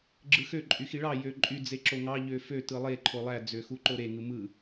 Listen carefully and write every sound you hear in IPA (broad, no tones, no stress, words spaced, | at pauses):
ɡ͡ǁɯxø ǃʼyxiɭɑ jøǃʼy d͡zeǁoŋɑ ʎøfø tɯlˠe ǃʰolˠæ d͡zøxuǃoɾe ŋɯmɯ